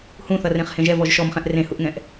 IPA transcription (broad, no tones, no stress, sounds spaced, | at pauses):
h ũ θ ʌ r ẽ χ h ẽ ʒ ɛ v ɔ ʒ ʃ ɔ m χ ɛ̃ ʔ r ẽ h u ʔ ŋ ɛ̃ ʔ